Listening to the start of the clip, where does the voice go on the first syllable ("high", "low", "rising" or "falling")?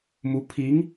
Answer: rising